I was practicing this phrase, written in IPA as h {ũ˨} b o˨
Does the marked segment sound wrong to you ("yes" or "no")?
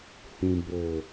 no